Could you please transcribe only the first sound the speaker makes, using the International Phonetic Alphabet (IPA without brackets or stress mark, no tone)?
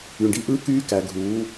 y